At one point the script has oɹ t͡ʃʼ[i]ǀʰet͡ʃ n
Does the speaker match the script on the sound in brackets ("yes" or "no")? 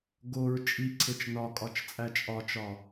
yes